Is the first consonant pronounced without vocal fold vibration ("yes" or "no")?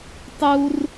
yes